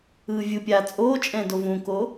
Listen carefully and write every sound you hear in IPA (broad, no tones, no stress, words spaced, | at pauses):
ɯːvʲɯpʲaː t͡sʼoːt͡ʃʼɛ̃ dovũko